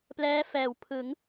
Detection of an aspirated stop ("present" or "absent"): present